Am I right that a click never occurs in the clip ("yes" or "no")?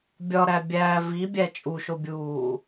yes